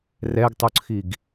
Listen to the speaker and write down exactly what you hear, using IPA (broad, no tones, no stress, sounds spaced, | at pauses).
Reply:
r ɛ ɡ tˤ u ǀʰ i ɡ